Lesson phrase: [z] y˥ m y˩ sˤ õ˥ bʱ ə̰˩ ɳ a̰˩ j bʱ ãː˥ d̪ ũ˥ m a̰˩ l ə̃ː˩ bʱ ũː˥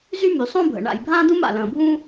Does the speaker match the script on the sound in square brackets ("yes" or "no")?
yes